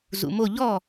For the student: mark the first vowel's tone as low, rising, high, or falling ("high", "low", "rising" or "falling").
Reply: low